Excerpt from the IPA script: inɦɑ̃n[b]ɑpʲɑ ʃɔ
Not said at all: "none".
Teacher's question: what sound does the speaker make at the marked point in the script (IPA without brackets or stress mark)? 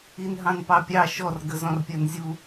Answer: p